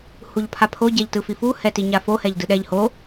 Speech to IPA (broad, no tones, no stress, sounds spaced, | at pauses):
h u ʎ pʰ a pʰ o ɟ ɛ ʎ t ɯ f i f u h ɛ t i ɲ a f o h ɛ ʎ d ɯ ɗ ɛ ʎ h o